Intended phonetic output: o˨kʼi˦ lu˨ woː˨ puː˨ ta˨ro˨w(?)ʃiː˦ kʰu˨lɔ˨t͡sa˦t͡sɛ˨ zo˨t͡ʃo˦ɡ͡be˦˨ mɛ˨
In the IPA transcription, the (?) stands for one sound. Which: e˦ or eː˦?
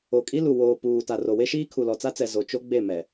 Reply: e˦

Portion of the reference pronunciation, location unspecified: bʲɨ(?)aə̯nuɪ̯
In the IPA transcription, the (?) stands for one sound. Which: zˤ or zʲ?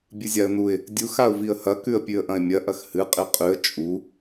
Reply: zʲ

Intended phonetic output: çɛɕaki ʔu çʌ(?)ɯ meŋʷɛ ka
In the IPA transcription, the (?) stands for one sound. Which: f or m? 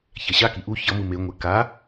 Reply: m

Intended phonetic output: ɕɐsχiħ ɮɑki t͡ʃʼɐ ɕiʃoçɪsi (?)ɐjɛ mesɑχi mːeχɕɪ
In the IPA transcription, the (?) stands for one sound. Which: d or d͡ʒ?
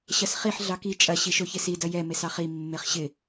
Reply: d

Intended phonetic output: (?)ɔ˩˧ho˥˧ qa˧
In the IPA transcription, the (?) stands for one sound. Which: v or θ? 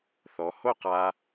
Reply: θ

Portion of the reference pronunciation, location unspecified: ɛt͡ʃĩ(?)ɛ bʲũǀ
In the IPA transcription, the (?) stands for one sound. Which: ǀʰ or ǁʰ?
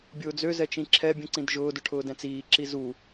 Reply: ǁʰ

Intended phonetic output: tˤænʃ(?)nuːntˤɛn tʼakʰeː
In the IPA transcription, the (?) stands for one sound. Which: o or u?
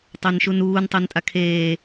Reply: u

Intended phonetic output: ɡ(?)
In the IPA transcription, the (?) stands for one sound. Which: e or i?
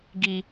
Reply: i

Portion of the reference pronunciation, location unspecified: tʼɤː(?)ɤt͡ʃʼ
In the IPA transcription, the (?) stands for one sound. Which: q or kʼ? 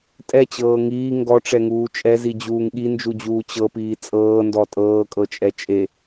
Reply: kʼ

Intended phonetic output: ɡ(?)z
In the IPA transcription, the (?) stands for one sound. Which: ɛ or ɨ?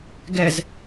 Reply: ɛ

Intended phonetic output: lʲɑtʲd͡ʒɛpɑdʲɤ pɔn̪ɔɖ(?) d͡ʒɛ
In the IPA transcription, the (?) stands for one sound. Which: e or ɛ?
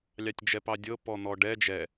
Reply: ɛ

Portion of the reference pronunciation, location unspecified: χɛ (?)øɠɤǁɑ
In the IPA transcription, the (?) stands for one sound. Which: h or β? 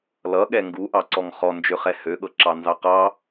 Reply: h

